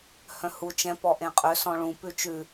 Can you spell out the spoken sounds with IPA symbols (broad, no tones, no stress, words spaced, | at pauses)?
hœ̃hu t͡ʃɛ̃ pɔʔẽqʼø sɔ̃ɭũ pʉt͡ʃʉ